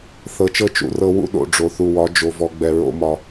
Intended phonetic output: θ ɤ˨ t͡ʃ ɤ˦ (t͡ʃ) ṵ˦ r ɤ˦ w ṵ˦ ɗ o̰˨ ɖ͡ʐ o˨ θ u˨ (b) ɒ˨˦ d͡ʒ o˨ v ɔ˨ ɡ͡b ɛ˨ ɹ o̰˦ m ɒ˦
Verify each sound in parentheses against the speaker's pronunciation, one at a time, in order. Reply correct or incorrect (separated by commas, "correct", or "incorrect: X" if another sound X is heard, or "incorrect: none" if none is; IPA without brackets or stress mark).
correct, incorrect: w